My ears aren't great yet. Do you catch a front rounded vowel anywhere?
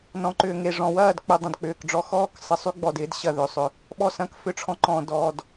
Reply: yes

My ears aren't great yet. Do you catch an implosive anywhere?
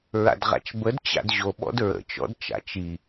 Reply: yes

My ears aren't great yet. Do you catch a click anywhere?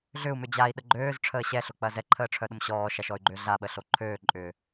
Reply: yes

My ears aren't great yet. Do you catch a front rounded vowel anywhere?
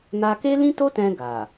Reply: no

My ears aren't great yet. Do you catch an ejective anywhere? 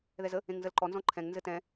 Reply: no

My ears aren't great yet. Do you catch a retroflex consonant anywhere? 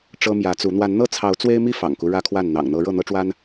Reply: yes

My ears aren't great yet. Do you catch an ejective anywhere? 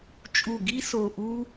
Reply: yes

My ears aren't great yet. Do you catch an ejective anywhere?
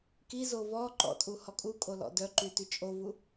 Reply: yes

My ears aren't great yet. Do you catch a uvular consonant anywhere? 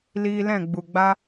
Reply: no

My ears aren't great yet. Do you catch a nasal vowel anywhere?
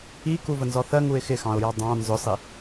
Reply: yes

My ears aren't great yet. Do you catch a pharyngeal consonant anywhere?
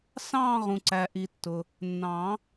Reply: no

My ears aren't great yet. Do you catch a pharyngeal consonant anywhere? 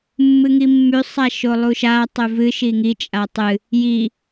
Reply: no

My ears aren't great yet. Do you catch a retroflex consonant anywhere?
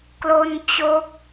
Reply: no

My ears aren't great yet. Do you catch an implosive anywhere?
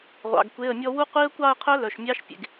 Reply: no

